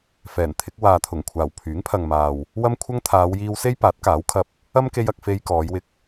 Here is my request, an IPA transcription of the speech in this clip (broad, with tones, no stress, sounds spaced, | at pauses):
f ɛː˨˩ n t̪ʰ ɪ˨˥ k̚ w aː˨ t̪ʰ ʊ˨˩ ŋ kʷʰ aː˨˩ w pʰ yː˨˥ ŋ pʰ ɐ˨ ŋ m aː˨ w | w ɐ˥ m kʷʰ ɐ˥ ŋ t̪ʰ aː˨˧ w j iː˧ w s e˥ j p aː˨˥ t̚ k aː˨˥ w kʰ ɐ˧ p̚ | ɐ˥ m k e˧ j ɐ˧ k̚ f e˧ j k ɔː˨˧ j w ɪ˧ k̚